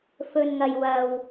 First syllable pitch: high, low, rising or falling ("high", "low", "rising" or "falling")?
low